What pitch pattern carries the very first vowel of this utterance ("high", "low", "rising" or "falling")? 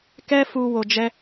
high